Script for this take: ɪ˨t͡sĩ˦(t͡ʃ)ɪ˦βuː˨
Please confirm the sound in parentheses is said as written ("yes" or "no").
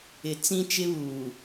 yes